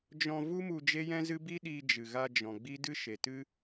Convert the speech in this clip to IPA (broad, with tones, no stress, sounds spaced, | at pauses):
d͡ʒ ɔ̃˧ v u˦ m u˧ d͡ʒ e˦ j ɛ̃˦ z ɨ˦ b i˦ ɗ i˧ d͡ʒ ɨ˨ ɣ a˧ d͡ʒ ɔ̃˨ ɡ͡b i˦ d ɨ˦ ʃ e˨ t ɨ˦